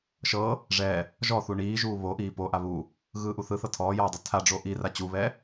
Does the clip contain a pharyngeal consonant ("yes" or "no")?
no